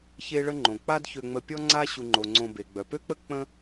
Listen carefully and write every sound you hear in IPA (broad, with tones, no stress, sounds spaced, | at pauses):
ç e˦ ɭ ə˦ ŋ͡ǃ õ˩ k͡p a˥ d ç ø˨ ŋ͡m ə˨ pʲ ɔ˦ ŋ͡ǀ a˦ ɕ u˨ ŋ͡ǃ o˩ ŋ͡ǀ õ˨ b e˩ ɡ͡b œ˩ p ø˥ k͡p ə˥ k͡p ə̃˥